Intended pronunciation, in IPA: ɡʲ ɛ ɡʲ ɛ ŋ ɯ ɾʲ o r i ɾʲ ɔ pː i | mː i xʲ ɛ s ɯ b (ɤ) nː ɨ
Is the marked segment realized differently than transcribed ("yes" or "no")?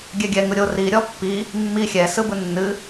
yes